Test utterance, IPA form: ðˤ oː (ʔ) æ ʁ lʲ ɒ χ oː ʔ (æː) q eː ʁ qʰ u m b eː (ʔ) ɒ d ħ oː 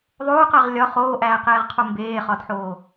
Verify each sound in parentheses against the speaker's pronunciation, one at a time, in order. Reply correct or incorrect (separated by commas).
incorrect, correct, incorrect